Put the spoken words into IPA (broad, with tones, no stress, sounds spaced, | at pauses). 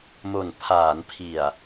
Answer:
m o˨˩ n pʰ aː˩˦ n pʰ i˨˩ a̯